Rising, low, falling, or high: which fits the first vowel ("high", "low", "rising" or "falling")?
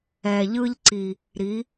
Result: low